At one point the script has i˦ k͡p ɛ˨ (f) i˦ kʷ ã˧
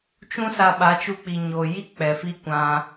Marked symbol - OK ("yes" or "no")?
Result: yes